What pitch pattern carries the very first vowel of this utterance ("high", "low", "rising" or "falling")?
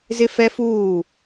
high